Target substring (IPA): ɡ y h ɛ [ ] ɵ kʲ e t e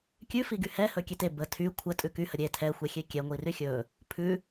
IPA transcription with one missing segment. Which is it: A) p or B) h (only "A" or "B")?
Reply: B